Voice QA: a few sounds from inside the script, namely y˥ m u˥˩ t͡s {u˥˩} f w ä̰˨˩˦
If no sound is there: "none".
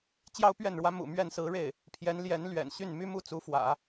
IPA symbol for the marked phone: u˧˥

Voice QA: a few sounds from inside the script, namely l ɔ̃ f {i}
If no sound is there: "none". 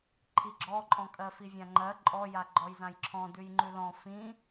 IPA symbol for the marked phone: ĩ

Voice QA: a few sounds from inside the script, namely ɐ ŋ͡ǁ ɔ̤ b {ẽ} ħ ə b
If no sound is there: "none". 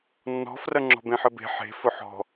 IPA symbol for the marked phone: ẽ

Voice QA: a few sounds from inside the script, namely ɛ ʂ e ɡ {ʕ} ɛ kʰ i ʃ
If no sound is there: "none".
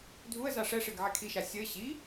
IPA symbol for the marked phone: ʕ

